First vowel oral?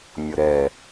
yes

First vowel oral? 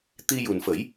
yes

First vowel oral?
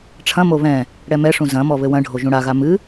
no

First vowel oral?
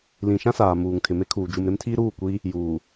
no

